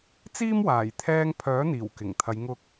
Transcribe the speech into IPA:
t͡siː˥mwaː˨˩j t̪ʰɛː˧ŋpʰœː˨˥n̪iː˨˩w kɪ˨˩ŋt̪ʰɐ˨˧jŋʊ˧k̚

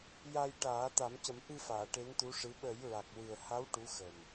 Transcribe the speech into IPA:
ja˧jʈaː˨˩˦ t̪a˨˩˦mcə˨˩˦mʔɨ˧faː˨˩˨ ʈe˧˥nt̪u˧˥ʂɨ˧˥ ɓə˨˩˦jɹa˨˩k̚wɨ˨˩ə̯ha˧˥w ʈu˧˥xə˨˩m

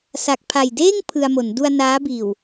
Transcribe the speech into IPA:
sa˨˩k̚pʰa˨˩j deː˥˩ŋ pʰɯ˧a̯mo˩˦n du˧a̯ naː˦˥biː˨˩w

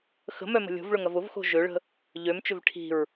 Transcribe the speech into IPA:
xə̤mœmə̤ lʲo̤vɭʊŋɐv ʊvxo̤ ʒøɭə̤ | ʎømt͡ʃʏv ʈʰi̤ɹ

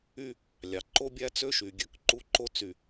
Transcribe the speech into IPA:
y˦ | lʲɑ˨ ǃo˦bʲæ˦t͡sø˦ ʃy˨ɡʲø˦k ǃu˦ǃo˦t͡sy˨

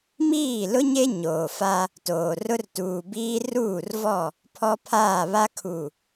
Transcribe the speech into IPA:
miː˦˨lʊ˦ɲe˦ ɲoː˨fa˦ | toː˨ rʊ˦rtuː˨biː˦ ruː˦˨rvɔ˦˨ | pʰɔ˦pʰaː˦˨ βa˦ kʰu˨

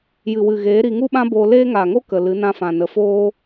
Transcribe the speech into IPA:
jɨ˨wɨ˨ɣeː˨˦ ɾi˧ŋu˦ɓã˦ boː˧leː˦ŋaː˨ŋo˦ kə˨lɨ˨˦nã˧fã˨ nə˨foː˦

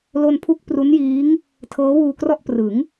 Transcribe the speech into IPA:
lo˧npʰu˦˥k̚ pru˦˥njiː˦˥ŋ | tʰɤː˦˥wuː˧krɔ˥˩ʔ prɯ˩˦ŋ

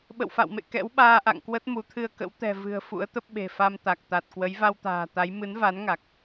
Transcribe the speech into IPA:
ɓə̰˧˨wfa̰˧˨wmḛ˧˨ kɛ̰˧˥wɓaː˧ʔa̰˧˨ŋkwə˦˥t̚ mu˨˦t̪ʰɨ˧ə̯kə̰˧˥w t̪ɛ̤˨˩vɨ̤˨˩ə̯ fṵ˧˥ə̯t̪ə˦˥p̚ɓe̤˨˩fa˧m t̪a˨˩k̚t̪a˨˩t̚ kwə˨˦jva˧wt̪a̤ː˨˩t̪a˨˦j mɨ˨˦nva˨˦nŋa˨˩k̚

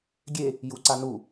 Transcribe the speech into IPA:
ɡʲe | juǀanu

